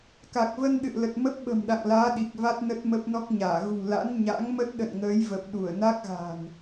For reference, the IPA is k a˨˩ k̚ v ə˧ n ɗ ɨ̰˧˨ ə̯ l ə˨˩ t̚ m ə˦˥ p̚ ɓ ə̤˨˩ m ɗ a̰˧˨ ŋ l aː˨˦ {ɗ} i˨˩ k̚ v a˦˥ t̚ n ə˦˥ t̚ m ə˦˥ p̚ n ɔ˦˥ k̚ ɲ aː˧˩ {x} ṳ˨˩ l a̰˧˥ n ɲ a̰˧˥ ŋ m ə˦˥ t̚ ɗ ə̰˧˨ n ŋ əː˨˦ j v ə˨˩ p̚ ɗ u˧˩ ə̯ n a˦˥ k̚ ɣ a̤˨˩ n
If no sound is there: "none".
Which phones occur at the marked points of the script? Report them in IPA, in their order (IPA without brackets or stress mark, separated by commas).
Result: ɗ, ɣ